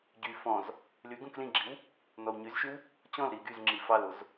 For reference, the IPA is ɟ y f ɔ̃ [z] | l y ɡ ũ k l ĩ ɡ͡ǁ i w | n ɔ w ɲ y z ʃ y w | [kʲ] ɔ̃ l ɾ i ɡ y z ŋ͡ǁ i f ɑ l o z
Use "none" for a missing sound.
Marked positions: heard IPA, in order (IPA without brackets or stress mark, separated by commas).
z, t͡ɕ